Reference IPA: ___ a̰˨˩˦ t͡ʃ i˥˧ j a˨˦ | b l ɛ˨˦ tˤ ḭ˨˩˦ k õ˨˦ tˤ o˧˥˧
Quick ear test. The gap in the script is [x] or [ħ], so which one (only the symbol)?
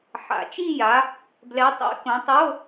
ħ